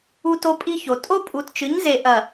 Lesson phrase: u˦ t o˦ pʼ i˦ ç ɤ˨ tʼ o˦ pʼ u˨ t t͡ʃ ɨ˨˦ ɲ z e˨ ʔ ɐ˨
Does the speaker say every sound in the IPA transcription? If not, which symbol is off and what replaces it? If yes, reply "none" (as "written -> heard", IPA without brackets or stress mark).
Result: ɤ˨ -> o˨